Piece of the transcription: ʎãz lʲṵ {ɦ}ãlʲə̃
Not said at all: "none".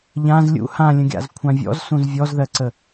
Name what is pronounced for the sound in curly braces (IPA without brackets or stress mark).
h